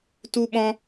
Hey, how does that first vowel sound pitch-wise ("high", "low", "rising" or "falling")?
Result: high